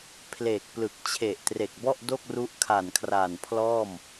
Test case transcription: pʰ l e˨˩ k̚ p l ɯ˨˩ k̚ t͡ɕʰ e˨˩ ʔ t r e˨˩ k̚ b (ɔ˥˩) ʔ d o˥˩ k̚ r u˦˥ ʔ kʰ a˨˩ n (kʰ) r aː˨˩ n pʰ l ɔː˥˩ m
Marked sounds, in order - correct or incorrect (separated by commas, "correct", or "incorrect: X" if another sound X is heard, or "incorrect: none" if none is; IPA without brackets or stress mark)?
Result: correct, correct